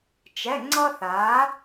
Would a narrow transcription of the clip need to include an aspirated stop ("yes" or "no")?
no